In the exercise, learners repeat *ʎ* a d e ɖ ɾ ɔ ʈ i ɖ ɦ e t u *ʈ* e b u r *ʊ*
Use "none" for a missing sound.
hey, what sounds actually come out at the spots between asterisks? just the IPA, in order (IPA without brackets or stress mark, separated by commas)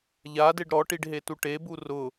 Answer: ʎ, ʈ, ʊ